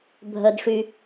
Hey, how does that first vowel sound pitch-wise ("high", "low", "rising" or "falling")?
high